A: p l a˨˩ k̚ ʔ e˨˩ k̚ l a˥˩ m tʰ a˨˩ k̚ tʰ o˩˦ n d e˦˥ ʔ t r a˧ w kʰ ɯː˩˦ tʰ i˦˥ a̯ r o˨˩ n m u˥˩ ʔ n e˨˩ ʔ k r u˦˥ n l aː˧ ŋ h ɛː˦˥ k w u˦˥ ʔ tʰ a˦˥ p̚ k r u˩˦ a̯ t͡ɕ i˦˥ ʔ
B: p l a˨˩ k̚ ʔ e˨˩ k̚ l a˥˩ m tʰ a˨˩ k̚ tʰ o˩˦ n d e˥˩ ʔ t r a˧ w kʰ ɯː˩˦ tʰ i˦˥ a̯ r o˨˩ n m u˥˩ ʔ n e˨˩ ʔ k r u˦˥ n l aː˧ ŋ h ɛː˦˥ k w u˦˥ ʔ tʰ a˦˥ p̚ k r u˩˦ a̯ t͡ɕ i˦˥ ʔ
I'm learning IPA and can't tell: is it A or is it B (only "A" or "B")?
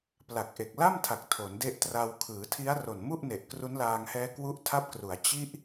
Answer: A